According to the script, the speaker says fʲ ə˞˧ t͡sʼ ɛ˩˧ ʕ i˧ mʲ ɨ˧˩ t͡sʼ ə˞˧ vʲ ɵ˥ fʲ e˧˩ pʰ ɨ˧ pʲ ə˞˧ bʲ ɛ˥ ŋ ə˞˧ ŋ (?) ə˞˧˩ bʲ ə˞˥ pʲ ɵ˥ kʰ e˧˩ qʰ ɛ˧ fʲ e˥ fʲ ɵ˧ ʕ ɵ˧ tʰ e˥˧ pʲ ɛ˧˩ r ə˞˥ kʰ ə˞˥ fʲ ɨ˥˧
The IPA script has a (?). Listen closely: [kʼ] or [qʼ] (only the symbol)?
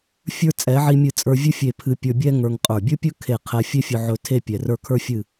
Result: qʼ